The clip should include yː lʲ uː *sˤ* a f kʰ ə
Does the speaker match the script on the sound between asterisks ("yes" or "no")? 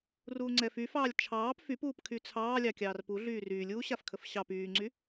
no